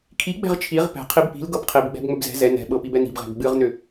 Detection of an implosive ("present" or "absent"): present